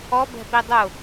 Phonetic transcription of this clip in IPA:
ɔ b ɛ̤ p i dˤ ʊ

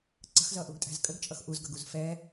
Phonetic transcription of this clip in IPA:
ǀ ə̤ x z ʌ ʔ u ɡ tʼ æ̤ z kʼ ə ɡ t͡ʃʼ ʌ x ʔ u z ɡ ʌ ɡ u z f ɛ

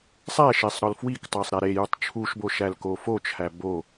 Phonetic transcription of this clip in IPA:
sˤ æ ʃ e sˤ ɾ ɒ l f w i k tˤ æ sˤ ɾ æ ɾ e j u tˤ t͡ʃʰ u ʃ b o ʃ æ l k o f o t͡ʃʰ æ b o

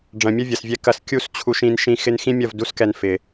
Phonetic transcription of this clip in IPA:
ɖ͡ʐ ɐ̃˨ mʲ ɐ˦ vʲ ɐ˨ s vʲ ɛ˧ k ɐ˧ s kʲ u˧ s t͡ɕʰ u˧ ʃ ĩ˧ n ʃ ĩ˧ x ɪ˦ n x ĩ˦ mʲ ɐ˦˨ v d u˦ s k ɛ˧ n f ɪ˨

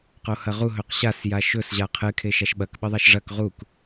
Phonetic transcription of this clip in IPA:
q o h ɐ ʁ u ɦ ɵ q ɕ a s j a ʃ ɵ s ʑ a qʰ ɨ kʰ e ʃ a ʃ ɓ ɐ k ɓ ɨ ðˤ a ʃ ʐ ɐ k ʁ u k

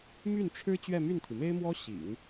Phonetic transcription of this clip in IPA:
m y˥˩ n ʈ͡ʂʰ ɻ̩˥ t͡ɕ ɥ ɛ˥˧ m y˥˩ n t̪ʰ i˩ m e˥ ɪ̯ m w ɔ˥ ɕ ḭ˨˩˦ ŋ

